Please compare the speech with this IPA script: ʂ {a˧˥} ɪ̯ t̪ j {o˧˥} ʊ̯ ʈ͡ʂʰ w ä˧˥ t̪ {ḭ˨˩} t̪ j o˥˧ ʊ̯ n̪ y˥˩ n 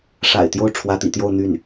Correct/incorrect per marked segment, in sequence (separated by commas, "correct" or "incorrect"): incorrect, incorrect, correct